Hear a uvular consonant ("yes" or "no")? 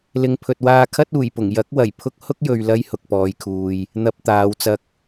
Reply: no